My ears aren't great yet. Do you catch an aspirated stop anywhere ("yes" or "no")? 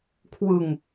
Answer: yes